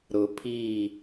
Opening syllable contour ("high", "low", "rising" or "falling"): low